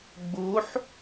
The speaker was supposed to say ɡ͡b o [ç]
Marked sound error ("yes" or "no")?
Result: yes